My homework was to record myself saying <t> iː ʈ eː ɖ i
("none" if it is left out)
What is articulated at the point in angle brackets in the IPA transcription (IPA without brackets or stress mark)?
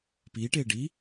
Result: p